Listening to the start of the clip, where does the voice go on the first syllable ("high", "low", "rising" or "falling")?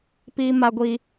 high